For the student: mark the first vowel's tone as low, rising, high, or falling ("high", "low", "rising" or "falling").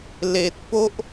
low